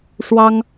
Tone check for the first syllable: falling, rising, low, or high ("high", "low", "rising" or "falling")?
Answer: high